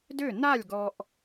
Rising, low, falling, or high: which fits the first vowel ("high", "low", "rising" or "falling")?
falling